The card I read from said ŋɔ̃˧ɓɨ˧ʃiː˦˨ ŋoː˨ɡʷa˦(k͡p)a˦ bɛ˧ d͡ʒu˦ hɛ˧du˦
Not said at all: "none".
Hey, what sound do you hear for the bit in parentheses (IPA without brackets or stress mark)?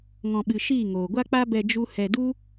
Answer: k͡p